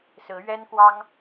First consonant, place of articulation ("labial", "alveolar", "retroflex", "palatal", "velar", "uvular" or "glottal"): alveolar